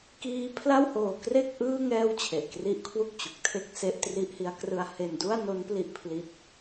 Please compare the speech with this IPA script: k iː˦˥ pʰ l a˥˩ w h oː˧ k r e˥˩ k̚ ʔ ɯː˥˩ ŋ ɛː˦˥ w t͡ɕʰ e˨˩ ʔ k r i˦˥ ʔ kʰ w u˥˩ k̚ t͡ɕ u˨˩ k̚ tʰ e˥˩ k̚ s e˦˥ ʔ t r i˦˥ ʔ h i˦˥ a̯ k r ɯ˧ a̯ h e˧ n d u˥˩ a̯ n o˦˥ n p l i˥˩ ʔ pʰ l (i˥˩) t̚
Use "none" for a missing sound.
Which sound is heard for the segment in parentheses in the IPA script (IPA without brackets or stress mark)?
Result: i˦˥